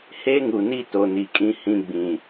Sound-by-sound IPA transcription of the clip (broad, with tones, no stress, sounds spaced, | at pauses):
h e˦ ŋ u˨ n i˦ t o˨ n i˨ kʼ ĩ˦ h ĩ˦ ɡ͡b ĩ˨